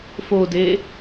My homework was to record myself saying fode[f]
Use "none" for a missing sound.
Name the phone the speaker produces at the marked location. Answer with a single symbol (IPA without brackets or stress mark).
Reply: none